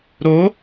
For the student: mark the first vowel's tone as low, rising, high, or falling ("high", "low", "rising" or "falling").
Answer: rising